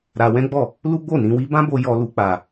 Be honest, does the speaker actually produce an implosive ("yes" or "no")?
no